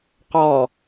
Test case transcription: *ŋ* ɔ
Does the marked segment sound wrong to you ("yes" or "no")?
yes